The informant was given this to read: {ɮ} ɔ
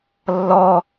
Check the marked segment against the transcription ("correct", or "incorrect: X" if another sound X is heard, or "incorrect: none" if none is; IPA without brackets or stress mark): incorrect: lː